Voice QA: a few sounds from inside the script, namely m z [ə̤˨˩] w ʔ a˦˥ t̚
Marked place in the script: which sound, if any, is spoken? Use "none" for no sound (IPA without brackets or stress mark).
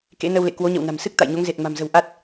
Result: ə̤˨˩